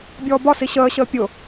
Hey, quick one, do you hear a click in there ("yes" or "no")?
no